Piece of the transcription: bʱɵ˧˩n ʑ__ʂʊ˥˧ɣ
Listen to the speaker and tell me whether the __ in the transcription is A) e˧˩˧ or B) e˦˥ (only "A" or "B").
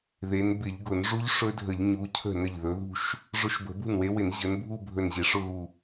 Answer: A